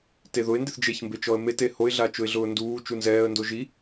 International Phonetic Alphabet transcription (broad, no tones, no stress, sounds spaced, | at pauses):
t e ð ʊ ɪ̯ n d ɪ θ d͡ʒ e ç m b e t͡ʃ ɔ ə̯ m e t e h o ɪ̯ ɮ a t͡ʃ ʊ ɪ̯ ɮ ʊː n d uː t͡ʃ u n z ɛː ə̯ n d o ʒ i